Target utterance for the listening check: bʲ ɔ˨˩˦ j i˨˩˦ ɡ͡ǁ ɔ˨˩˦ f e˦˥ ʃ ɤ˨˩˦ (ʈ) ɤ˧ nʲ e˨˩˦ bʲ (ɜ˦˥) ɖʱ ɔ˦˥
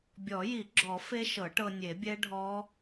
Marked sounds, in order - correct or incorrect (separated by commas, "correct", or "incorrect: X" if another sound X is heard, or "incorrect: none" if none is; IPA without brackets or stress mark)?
correct, incorrect: ɛ˦˥